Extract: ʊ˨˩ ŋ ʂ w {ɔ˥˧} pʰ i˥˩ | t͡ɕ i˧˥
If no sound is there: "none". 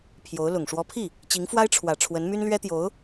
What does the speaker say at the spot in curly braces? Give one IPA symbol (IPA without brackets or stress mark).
ɔ˧˥